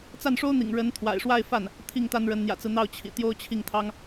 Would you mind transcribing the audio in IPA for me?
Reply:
t͡s a˥˩ n ʂ o˥ ʊ̯ n̪ ḭ˨˩ ŋ ɻ ə˧˥ n t̪ʰ w a̰˨˩ ɪ̯ ʂ w a˥˧ ɪ̯ f a˥˩ n | t̪ʰ i˥˩ ŋ t̪ a˥ n ɻ ə˧˥ n n̪ j ä̰˨˩ t͡s ɹ̩˦ n̪ ɑ˥˩ ʊ̯ t͡ɕʰ ḭ˨˩ t̪ j o˥ ʊ̯ t͡ɕʰ i˥˩ ŋ t̪ʰ ɑ˥ ŋ

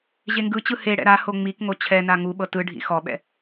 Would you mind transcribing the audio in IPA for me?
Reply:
ʑ e ŋ ɡ ɯ t͡ɕ ɯ h e ɽ ɛ̰ ɾ a h o ŋ͡m i k ŋ o t͡ɕʰ ɛ n a ŋ u ɓ ɤ t ɯ ɖʱ ḭ x ɔ ɓ ɛ̰

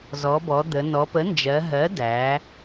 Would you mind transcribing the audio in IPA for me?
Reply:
z ɔ˩˧ b ɔ˩˧ d̪ ə˩˧ n ɔ˩˧ p ə˩˥ n d͡ʒ ɜ˩˧ ɦ ɜ˩˥ d æ˩˧

